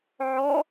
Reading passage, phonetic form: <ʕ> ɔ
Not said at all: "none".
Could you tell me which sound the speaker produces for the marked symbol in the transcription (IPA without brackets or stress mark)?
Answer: ʕ